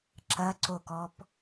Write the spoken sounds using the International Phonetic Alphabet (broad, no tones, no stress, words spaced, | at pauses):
ǁɐǀokɔp